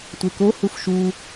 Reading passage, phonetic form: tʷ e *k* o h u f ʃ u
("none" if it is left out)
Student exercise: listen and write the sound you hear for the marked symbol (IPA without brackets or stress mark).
k